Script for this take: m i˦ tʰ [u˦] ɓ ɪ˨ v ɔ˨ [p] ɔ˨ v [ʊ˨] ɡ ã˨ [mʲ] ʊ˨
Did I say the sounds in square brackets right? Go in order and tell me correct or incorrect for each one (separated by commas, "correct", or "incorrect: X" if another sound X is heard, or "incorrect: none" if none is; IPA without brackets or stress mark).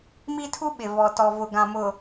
correct, incorrect: t, correct, incorrect: m